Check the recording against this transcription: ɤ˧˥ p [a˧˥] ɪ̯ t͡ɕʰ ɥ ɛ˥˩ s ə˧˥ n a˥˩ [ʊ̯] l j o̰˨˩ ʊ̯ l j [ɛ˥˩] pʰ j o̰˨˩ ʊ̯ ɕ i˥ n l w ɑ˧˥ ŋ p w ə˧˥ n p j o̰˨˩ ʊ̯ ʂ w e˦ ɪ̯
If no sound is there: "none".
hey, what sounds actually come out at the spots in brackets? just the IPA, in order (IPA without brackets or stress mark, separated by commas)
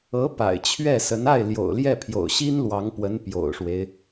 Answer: a̰˨˩, ɪ̯, ɛ˥˩